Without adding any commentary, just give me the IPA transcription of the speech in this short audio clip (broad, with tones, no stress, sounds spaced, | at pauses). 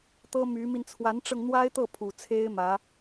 t̪ ɤ˥ m y˧˥ m i˧ n t͡sʰ w a˧˥ n ʈ͡ʂ ɤ˧ ŋ n̪ w a˥ ɪ̯ t̪ ɤ˥˩ pʰ u˨˩ t͡sʰ e˥ ɪ̯ m ä˧˥